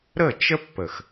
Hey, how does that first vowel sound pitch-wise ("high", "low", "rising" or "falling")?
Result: falling